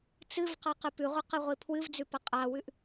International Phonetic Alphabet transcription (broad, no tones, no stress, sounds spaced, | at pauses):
t͡s ɨ v q a q ɨ p ʉ ʁʷ e q ɨ ʁʷ i pʰ w ɨ v d͡z ʉ p ɐ qʼ a w ʉ ʔ